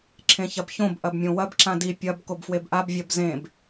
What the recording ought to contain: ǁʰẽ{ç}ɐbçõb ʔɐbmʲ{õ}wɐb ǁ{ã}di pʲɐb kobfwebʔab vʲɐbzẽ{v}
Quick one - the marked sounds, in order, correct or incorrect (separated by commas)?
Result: correct, correct, correct, incorrect